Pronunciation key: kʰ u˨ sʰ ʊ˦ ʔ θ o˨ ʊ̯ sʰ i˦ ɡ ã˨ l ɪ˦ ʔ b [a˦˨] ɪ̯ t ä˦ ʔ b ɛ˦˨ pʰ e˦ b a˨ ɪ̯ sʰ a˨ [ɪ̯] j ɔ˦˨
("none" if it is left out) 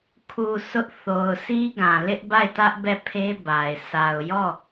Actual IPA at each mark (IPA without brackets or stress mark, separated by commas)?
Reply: a˦˨, ʊ̯